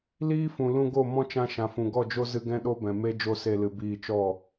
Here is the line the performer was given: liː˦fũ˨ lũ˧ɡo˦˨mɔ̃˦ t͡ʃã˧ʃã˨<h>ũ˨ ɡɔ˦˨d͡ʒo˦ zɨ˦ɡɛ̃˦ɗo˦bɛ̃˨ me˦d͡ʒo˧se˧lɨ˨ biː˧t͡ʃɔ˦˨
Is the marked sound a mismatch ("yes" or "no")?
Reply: yes